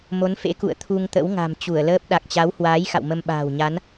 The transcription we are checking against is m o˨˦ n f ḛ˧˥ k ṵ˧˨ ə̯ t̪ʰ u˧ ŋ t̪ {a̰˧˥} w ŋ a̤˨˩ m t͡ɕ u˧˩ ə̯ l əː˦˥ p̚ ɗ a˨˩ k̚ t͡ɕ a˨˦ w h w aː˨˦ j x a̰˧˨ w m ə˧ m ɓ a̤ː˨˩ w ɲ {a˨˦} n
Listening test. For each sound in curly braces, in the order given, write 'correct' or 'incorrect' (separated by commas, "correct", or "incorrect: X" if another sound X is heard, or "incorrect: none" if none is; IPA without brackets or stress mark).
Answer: incorrect: ə̰˧˥, correct